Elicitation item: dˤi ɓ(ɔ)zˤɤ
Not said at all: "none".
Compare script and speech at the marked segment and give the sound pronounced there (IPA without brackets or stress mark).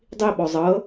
ɔ